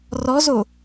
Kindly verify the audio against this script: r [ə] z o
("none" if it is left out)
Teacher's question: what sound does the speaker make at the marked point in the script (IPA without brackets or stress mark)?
ɔ